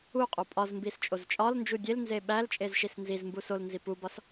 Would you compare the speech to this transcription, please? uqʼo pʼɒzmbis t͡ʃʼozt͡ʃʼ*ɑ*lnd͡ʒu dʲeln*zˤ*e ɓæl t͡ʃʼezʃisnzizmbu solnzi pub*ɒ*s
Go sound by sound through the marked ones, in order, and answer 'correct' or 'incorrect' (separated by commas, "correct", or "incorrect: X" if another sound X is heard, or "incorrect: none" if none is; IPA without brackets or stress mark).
incorrect: ɒ, incorrect: z, correct